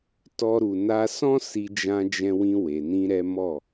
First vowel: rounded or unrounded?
rounded